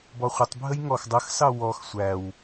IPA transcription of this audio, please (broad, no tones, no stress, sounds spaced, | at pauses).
b ɔ χʷ ə tˤ bʱ ə j ŋ ɔ x dˤ ə x s ɑ w ɔ x sʷ æ w